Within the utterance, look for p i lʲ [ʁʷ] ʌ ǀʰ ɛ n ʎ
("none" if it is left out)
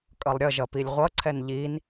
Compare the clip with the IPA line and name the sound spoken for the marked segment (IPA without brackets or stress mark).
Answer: ʁʷ